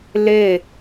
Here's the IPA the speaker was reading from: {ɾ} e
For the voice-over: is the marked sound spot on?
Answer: no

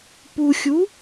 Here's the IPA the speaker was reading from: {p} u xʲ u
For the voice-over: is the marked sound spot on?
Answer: yes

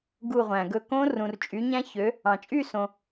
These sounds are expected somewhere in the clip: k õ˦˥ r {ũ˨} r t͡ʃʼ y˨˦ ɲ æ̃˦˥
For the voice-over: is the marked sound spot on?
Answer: yes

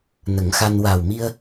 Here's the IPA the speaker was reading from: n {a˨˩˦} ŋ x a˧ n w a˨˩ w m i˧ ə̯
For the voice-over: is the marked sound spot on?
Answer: no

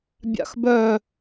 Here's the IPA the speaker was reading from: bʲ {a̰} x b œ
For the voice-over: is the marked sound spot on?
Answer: yes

